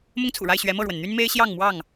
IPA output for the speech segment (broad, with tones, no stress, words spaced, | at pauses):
mʊ˦ŋt͡sʰṵ˨˩ɻa˥˨ɪ̯ɕɥɛ˨˦ mɤ˥˨ɻwə˩nn̪y˦n me˦ɪ̯ ɕjɑ˥˨ŋmwɑ˥˨ŋ